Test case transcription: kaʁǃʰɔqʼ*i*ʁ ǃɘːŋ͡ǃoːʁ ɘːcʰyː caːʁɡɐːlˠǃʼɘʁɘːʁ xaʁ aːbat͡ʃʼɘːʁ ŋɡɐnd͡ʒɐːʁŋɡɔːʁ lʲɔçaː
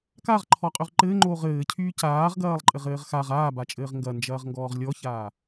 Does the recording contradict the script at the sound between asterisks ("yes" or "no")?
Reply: yes